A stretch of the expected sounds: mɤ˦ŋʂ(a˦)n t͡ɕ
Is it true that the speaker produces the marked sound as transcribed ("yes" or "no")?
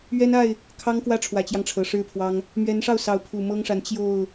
no